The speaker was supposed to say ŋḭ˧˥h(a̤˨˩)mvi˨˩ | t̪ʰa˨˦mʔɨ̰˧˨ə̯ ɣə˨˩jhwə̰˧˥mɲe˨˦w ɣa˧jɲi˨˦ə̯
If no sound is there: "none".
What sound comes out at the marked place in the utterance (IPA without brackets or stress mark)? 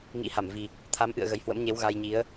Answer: a˧˩